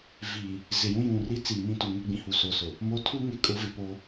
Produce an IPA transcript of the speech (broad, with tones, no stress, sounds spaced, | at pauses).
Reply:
v i˨ | z ɪ˨ j ũ˦ j ũ˨ r i˦ t͡s iː˨ m ĩ˦˨ t u˨ ŋ e˦ ɡ͡b ĩ˨ h u˨ s o˨ s ʊ˨ | m o˦ tʰ u˦ ŋ e˨ kʼ ʊ˨˦ v ɪ˨ p oː˦